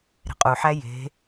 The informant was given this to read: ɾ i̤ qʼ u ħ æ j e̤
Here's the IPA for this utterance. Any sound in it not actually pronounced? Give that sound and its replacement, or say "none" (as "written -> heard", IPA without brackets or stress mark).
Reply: i̤ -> e̤